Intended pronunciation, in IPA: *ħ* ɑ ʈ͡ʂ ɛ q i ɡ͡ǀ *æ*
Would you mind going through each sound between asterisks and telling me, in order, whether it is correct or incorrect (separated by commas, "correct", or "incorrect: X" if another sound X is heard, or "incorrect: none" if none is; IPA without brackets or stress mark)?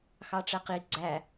incorrect: x, correct